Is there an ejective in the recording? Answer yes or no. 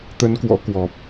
no